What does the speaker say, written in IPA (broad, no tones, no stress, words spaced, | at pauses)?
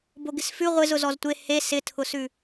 boɡɪsfʉ ʁʷɪz ʊzɔztʷe he sɪtʰʊsʉ